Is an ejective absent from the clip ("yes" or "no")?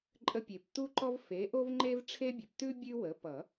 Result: no